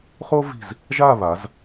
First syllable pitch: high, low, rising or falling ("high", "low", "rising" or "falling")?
high